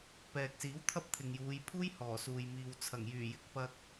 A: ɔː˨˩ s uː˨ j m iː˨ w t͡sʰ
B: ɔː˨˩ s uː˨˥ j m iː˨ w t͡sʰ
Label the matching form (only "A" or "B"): A